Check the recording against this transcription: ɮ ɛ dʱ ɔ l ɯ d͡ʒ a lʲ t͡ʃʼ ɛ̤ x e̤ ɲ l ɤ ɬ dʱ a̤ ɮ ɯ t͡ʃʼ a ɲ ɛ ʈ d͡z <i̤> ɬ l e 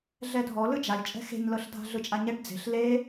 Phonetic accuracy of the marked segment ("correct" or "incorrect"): incorrect